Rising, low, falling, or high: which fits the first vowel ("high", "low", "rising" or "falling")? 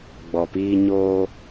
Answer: low